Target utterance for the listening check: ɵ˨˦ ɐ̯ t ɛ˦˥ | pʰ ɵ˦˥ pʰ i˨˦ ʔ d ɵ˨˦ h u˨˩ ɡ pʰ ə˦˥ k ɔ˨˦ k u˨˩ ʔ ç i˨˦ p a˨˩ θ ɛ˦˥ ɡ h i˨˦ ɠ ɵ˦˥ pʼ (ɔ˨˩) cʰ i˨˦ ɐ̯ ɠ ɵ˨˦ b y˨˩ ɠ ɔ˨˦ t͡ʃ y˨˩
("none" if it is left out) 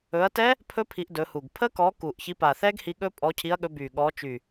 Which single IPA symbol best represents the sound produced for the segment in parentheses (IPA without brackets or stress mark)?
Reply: ɔ˨˦